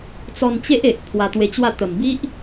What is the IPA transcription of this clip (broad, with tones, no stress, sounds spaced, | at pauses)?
t͡s ɔ˧ n t͡ɕ e˦ ʔ e˨ ʔ pʰ w a˧ t̪ w e˧ t͡ɕ w a˥˧ t̪ ə˨˩ m b i˦ ʔ